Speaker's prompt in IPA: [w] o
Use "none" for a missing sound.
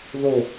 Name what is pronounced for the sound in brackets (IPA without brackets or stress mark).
ð